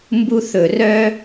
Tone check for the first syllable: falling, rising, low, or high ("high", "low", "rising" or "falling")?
high